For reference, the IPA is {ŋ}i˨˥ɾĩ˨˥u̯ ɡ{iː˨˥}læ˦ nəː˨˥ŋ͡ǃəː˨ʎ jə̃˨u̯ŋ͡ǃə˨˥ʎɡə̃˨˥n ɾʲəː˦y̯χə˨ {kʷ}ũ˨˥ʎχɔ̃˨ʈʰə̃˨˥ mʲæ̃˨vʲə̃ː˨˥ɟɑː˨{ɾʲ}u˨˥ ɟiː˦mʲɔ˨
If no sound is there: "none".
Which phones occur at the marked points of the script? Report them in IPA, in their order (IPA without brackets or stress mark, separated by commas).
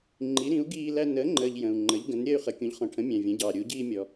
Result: ŋ͡ǃ, iː˦, kʲ, ɾʲ